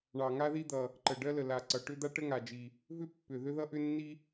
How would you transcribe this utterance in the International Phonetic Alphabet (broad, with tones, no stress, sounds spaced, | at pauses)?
ɳ ɑ˨˩ ŋ a˥ ð i˥ d̪ ʌ˨˩ | ǃ ə˨˩ ɖ ɜ˥ l ə˨˩ l a˨˩ ǀ ʌ˨˩ ʈ ʏ˥ d̪ a˥ ʈ ə˥ ŋ a˨˩ d͡ʒ i˨˩ | v ʏ˥ pː ʏ˨˩ ð ʏ˥ ð ʌ˥ ʔ ʏ˥ nː i˥